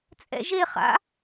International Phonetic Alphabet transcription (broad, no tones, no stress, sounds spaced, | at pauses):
t͡sʼ ɛ̰ ʒ e χ a̰